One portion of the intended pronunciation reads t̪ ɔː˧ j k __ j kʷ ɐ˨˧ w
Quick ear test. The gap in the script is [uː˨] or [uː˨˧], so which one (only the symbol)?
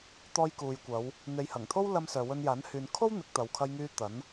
uː˨